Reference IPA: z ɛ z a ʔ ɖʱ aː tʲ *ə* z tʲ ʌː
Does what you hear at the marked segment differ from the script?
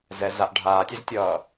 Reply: yes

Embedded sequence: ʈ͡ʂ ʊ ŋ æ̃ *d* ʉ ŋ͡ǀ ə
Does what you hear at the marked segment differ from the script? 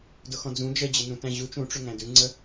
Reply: no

